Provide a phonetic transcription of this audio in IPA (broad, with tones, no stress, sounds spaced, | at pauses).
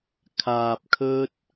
kʰ aː˧ p̚ kʰ ɵ˥ t̚